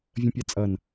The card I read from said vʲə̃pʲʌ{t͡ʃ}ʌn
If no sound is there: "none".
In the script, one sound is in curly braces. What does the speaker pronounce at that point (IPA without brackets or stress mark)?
t͡sʼ